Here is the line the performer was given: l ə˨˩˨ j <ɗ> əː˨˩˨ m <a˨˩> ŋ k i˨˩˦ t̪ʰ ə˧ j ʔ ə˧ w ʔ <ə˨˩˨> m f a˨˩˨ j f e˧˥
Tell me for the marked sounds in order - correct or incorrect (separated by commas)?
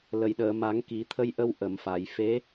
correct, incorrect, correct